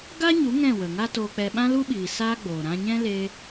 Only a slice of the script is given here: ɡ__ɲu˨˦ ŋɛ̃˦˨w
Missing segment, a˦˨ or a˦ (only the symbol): a˦